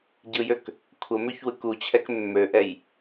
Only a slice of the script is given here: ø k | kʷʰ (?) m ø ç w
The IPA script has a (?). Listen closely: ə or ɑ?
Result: ə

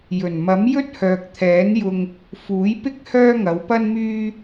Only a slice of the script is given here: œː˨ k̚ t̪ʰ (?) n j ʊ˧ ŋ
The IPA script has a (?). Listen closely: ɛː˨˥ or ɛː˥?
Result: ɛː˨˥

